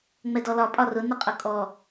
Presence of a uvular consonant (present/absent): present